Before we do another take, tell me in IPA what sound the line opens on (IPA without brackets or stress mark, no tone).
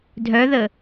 dʱ